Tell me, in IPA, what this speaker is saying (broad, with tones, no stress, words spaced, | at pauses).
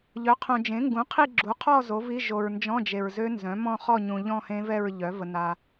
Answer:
ʎœ˩˥qʰõ˨d͡ʒẽ˩˥ ŋɡũ˩˥qʰi˥˧ɡ͡ǁu˩˥qʰɔ˥˧ zo˩˥vi˧˥˧ ʒo˨ɹ nd͡ʒɔ̃˧˥˧d͡ʒe˨ɹzø˦˥ nzœ̃˩˥mɔ̃˥˧χɔ˥˧ɲũ˨ ʎɔ̃˥˧hẽ˦˥vɛ˥˧ɹʎœ˩˥ və˨na˨